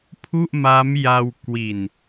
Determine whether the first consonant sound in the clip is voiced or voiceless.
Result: voiceless